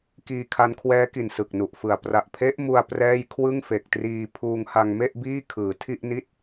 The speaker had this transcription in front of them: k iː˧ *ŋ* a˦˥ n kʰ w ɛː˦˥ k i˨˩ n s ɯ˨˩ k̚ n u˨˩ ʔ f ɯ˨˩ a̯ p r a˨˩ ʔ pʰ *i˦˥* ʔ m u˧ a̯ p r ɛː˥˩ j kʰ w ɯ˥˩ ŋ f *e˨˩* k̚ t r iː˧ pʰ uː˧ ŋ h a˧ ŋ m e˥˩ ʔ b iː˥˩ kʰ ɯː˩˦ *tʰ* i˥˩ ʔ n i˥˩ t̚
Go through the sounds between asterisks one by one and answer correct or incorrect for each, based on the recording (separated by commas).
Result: incorrect, incorrect, correct, correct